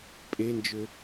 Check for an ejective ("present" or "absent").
present